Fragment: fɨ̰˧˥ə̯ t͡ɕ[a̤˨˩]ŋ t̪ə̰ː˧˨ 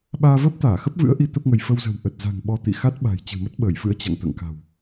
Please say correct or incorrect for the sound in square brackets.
incorrect